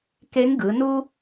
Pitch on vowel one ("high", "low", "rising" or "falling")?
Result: rising